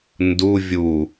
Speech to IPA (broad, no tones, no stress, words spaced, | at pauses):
ndu vʲu